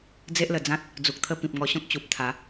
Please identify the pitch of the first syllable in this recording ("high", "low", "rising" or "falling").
high